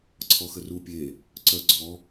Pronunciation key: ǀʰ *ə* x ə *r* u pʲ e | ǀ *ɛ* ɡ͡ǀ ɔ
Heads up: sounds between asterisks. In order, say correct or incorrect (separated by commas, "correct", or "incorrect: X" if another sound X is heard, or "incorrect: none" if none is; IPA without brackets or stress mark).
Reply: incorrect: ɔ, correct, incorrect: œ